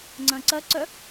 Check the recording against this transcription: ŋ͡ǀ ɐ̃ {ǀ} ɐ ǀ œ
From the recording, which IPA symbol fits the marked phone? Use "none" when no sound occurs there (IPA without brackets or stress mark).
ǀ